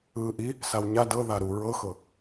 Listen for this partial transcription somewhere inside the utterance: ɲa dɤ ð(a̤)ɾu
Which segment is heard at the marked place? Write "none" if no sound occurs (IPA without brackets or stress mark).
a